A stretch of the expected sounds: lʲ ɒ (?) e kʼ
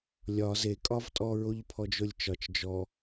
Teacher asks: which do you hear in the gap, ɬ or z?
z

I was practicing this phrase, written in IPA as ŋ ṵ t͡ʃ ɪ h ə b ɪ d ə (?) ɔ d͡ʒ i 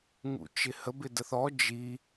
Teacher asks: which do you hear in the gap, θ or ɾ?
θ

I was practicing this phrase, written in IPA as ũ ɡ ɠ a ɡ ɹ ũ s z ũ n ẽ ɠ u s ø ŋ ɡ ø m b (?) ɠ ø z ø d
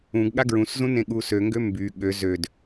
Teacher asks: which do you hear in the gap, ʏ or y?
y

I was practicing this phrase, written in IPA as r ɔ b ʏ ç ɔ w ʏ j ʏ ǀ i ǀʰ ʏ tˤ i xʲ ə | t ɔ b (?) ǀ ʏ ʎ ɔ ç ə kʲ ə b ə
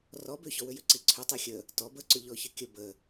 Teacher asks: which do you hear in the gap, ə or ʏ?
ə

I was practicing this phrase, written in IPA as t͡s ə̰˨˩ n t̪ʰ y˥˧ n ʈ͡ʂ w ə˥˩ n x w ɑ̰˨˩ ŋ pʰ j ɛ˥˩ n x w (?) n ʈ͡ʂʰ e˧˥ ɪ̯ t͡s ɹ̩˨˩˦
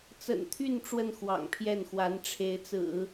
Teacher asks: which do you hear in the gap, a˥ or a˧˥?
a˧˥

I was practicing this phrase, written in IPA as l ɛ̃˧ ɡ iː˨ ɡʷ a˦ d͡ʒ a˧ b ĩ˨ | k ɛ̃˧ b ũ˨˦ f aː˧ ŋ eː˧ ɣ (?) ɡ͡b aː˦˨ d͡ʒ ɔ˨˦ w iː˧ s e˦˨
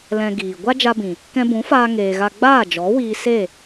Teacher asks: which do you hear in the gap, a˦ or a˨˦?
a˦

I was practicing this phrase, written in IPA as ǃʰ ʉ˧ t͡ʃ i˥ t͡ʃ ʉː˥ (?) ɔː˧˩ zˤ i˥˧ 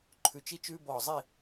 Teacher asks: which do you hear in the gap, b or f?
b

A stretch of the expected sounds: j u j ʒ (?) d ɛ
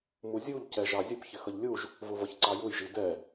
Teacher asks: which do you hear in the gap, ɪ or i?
i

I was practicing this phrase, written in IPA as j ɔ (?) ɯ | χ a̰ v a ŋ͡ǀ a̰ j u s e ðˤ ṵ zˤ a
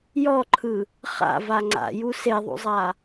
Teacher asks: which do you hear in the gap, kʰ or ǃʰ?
ǃʰ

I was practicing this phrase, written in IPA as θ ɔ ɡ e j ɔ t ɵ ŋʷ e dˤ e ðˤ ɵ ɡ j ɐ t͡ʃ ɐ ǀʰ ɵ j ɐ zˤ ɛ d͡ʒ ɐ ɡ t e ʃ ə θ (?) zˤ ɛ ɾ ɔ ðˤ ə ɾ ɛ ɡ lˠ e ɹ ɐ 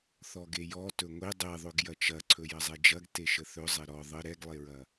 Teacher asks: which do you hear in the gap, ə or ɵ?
ɵ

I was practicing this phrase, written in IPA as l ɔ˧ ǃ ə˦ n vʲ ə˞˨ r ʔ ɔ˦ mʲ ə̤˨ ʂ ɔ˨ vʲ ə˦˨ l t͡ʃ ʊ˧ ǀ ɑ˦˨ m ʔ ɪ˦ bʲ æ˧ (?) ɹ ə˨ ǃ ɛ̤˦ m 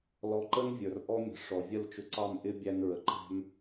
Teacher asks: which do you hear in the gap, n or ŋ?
n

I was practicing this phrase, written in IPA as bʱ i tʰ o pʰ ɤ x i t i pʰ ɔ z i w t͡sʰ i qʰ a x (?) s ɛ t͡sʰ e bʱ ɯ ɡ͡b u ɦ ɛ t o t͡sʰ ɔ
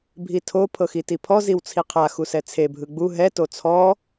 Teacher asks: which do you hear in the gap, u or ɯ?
u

